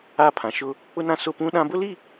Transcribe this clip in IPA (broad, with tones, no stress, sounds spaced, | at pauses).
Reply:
a˦˨ pʰ ã˨ ʃ ʊ˦ | k͡p ʊ˦ n ã˦ s ʊ˦˨ p ũ˦ ɗ ã˦ b ʊ˦ l i˦˨